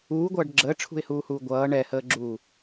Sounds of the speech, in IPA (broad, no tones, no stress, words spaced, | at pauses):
uːɡʷʌːɖ ɡ͡ǁəːʈ͡ʂʰṳɪ̯huːhuː ɡʷʌː ɳɛhəːɡ͡ǁuː